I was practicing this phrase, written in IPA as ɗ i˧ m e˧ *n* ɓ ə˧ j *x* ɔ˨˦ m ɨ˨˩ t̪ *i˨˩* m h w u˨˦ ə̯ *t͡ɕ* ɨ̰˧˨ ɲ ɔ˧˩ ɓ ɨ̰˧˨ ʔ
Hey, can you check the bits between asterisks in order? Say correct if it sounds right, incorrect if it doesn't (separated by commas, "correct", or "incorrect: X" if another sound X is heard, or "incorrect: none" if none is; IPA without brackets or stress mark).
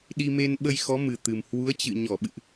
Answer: correct, correct, incorrect: ɨ˨˩, correct